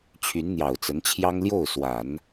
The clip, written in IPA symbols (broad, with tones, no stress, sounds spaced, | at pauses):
t͡ɕʰ y˧˥ n n̪ j ɑ˨˩ ʊ̯ t͡s ə˧˥ n t͡ɕʰ j ɑ˥ ŋ l j o˥˩ ʊ̯ s w a˨˩˦ n